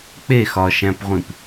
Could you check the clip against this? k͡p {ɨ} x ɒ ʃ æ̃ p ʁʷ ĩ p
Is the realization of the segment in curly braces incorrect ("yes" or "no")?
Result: yes